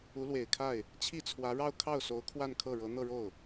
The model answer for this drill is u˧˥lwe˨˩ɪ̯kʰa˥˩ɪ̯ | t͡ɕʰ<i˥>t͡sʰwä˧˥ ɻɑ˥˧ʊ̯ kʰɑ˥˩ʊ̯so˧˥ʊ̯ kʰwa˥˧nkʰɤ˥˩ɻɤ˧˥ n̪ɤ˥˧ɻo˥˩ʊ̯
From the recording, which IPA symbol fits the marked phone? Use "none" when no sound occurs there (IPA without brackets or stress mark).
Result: i˥˩